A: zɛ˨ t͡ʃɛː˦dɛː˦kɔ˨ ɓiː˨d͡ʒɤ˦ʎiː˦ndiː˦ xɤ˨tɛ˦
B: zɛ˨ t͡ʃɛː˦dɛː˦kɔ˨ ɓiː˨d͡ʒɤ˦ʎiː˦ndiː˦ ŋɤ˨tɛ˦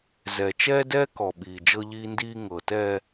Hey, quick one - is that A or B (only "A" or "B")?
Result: B